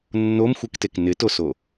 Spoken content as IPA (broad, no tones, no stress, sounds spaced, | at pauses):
nː o m xʷ ɨ k t e k n ɪ t o s o